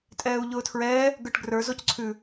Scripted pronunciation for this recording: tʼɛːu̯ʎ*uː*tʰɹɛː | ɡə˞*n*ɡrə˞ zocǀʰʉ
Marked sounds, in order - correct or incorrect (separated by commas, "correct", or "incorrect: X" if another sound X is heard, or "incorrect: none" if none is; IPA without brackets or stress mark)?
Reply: incorrect: ʊː, incorrect: ʈ